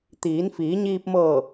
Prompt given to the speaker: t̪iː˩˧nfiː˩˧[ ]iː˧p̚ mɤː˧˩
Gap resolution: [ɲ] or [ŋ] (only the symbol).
ɲ